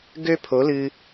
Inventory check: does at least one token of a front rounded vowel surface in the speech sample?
yes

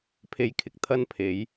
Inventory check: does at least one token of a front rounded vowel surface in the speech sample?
no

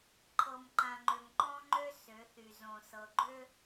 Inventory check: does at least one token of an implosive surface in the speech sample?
no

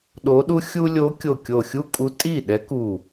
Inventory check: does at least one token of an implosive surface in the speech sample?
yes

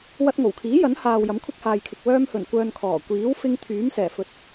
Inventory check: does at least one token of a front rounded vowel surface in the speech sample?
yes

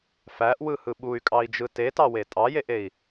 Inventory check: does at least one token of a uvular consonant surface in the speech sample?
no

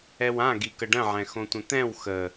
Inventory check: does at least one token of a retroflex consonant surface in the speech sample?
yes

